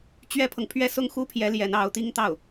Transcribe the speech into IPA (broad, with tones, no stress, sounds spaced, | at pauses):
t͡ɕ ɥ ɛ˥ pʰ ɤ˨ ŋ pʰ ɥ ɛ˥˧ s ʊ˥˩ ŋ x u˥ pʰ j ɛ˧˥ l j ɛ˧˥ n ɑ˧˥ ʊ̯ t̪ i˥ ŋ t̪ ɑ˥˩ ʊ̯